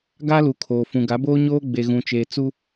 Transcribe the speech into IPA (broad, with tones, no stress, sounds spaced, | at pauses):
ɡ a˦ l u˨ kʰ oː˨ f ũ˨ ɡ a˨˦ b oː˦ ɲ oː˦ ɡ͡b e˨ ɣ ũ˨ t͡ʃ e˨ t͡s u˦